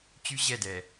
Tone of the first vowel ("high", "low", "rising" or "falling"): high